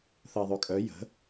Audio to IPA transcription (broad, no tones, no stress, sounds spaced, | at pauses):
θ ə e̯ ðˤ ø kʼ œ j ə̤